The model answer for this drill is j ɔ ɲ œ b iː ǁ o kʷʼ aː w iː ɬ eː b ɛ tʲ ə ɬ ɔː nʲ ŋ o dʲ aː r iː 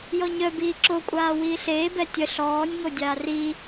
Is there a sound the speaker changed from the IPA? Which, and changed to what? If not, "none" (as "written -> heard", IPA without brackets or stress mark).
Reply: none